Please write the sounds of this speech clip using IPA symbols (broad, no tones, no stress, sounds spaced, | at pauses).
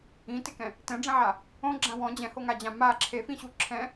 ĩ t ɪ k ɛ̃ | t ɛ̃ ɖ͡ʐ ɛ̃ ʕ a | õ ɡ͡ǁ ã w ɔ̃ d͡ʑ ɛ̃ h o ŋ a d͡ʑ ã m a ǁʰ e f ĩ ɕ u ǁʰ ɛ̃